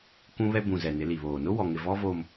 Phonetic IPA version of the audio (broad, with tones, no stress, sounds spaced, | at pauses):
k ũ˦ β ɛ˦ b ũ˨ z ɛ˨ n ɪ˨˦ l i˨ β oː˨ n ʊ˦ w ɔ˨ ŋ ɪ˨ v ɔ˦ v oː˨ m